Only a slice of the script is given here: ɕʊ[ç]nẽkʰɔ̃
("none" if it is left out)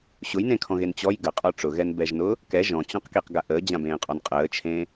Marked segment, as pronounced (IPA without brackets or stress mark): j